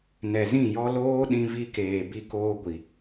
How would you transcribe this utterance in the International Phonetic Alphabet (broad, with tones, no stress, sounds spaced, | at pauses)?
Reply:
n ɛ˨ z ĩ˦˨ j ɔ˦ l oː˦ ɗ ĩ˧ v i˧ k eː˨ b i˧ k oː˧ ɡʷ i˨